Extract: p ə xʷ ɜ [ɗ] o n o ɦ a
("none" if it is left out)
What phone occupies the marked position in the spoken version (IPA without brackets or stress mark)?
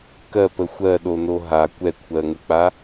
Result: ɗ